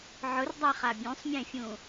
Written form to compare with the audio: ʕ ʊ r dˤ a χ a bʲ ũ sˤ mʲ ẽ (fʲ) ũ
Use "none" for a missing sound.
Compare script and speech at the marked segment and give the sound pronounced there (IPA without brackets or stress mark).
fʲ